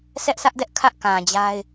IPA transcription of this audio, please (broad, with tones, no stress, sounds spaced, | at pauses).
sʰ ɛ˦ ʔ s ä˦ ʔ d ɛ˦ ʔ kʰ ä˦ ʔ k ã˨ d͡ʑ a˦ ɪ̯